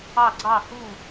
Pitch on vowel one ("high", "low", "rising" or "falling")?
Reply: falling